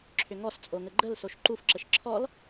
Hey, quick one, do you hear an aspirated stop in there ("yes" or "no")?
yes